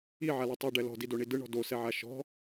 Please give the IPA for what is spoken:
iʕale tˤɛɖɛ lɔ̤didoɳi dɯɳɔ̤ dosɛʕa ʃɔ̤

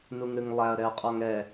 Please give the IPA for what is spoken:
nuŋɾɨŋlˠæɐ̯ ɾɛɐ̯qʼɔŋɛ

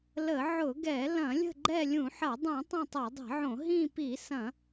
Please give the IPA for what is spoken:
lə˧˩˧ ʕʊ˧˩˧ɡɛ˧˩˧ lɐ̃˧˩˧lʲə̤˦˨ ɡ͡ǃɛ˦˨lʲũ˧˩˧ħɐ˧˩˧ dˤũ˧˩˧ tˤɐ̃˦˨tˤɛ˧˩˧dˤi̤˧˩˧ʕõ˧˩˧ ɦĩ˦˨pi˧˩˧sɐ̃˧˩˧

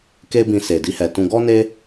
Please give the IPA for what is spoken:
ke˦bĩ˧ se˨di˧hɛ˨tũ˧ ɡɔ˦ne˦

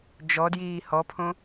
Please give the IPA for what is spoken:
d͡ʒɔdjiː hɔpʰõ

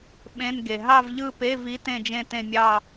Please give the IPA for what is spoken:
ɓẽ˧˥˧nɡe˨ ɦɑ˥˧vʎɯ˥˧pe˧˥˧vi˧˥ tẽ˥˧d͡ʒẽ˥˧ tẽ˥˧mʲɑ˥˧

